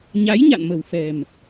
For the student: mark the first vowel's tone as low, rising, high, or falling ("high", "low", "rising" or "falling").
rising